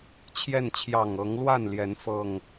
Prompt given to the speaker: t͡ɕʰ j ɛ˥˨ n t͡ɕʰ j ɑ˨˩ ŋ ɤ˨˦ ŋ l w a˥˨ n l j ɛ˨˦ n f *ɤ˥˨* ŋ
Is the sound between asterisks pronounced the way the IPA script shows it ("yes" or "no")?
yes